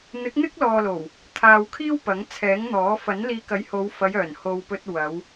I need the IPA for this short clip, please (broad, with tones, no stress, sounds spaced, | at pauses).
n̪ ɪ˨˥ k̚ n̪ ɪ˥ k̚ l ɔː˨ l o˨˩ w | t̪ʰ aː˨ w kʰ iː˥ w p ɐ˨˥ ŋ t͡sʰ ɛː˨˥ ŋ n̪ ɔː˨˥ f ɐ˨˥ n l iː˧ k ɐ˨˥ j h o˨˧ w f ɐ˨˧ j œː˨˩ n h o˨ w p ɵ˧ t̚ w ɐ˨˧ w